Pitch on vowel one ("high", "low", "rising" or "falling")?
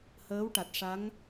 rising